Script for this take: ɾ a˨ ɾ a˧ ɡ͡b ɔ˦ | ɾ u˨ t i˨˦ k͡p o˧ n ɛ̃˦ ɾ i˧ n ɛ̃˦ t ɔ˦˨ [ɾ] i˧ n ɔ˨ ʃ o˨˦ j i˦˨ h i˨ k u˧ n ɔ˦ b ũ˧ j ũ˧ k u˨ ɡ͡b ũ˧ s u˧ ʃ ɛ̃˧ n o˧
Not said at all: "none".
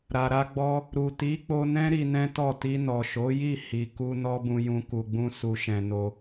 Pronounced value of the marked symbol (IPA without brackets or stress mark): t